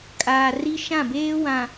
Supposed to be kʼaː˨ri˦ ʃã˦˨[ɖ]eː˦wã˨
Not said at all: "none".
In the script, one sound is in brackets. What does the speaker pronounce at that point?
b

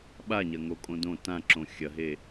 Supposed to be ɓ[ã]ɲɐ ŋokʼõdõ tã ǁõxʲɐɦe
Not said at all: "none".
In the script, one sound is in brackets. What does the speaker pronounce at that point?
a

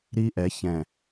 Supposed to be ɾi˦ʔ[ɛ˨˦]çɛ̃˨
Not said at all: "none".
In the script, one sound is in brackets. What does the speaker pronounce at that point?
ɛ˨˦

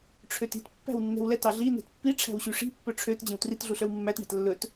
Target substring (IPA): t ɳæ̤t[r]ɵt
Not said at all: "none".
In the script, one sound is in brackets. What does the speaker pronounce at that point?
lː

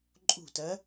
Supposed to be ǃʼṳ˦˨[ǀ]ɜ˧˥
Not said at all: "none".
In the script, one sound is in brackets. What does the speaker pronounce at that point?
t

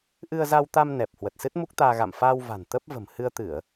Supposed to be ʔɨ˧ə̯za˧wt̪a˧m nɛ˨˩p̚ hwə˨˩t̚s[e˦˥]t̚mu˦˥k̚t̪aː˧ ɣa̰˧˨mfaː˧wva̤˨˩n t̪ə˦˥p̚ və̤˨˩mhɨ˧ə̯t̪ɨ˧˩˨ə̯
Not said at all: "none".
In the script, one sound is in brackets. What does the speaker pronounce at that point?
ɨ˦˥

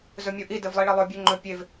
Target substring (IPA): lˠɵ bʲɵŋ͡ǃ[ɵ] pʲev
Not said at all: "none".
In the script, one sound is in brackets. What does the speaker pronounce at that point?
ɵ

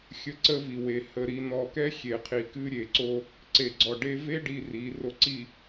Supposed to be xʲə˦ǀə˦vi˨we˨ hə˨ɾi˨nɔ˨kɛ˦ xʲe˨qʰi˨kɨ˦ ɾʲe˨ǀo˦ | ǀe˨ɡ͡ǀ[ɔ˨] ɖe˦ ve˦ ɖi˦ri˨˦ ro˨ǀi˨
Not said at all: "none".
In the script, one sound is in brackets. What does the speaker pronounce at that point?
ɔ˨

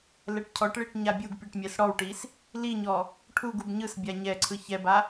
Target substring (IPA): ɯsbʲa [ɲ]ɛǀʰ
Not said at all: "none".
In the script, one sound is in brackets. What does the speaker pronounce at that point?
ɲ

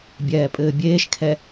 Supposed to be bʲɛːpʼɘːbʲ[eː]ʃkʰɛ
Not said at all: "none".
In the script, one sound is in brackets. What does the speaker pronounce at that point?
eː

